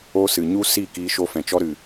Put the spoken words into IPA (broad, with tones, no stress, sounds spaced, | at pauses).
o˧ s ɨ˨ ɲ u˦ s i˦˨ k iː˧ ʃ o˧ f ɛ̃˨ t͡ʃ ɔ˦ ɾ ɨ˨